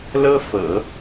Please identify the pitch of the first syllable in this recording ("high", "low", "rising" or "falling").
high